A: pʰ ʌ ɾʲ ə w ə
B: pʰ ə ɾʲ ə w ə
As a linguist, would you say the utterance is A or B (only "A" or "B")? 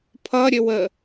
A